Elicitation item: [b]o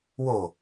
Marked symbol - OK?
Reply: no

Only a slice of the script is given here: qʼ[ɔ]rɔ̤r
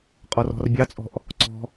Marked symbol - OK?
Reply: yes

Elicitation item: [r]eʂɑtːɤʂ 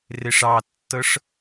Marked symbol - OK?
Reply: yes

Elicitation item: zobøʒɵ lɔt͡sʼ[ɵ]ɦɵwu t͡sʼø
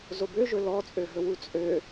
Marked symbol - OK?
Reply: no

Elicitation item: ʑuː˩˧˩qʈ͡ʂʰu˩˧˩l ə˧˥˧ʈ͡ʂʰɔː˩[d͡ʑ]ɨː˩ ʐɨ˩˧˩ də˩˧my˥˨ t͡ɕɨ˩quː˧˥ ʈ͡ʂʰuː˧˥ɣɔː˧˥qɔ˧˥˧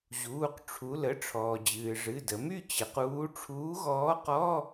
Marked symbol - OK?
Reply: yes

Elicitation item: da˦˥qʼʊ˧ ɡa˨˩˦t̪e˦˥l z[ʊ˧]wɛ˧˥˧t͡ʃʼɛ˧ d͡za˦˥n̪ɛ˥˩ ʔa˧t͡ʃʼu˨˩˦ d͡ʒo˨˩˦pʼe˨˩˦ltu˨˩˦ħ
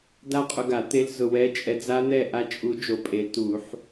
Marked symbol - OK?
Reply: yes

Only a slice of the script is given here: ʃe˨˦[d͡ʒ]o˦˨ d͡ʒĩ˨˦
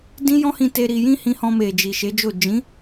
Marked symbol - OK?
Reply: yes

